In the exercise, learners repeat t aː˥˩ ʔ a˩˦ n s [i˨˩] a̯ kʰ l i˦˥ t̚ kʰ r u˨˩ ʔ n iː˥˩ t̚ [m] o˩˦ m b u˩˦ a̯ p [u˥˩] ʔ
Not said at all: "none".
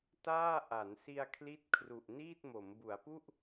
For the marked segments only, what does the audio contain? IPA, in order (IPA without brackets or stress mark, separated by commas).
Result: i˧, m, u˥˩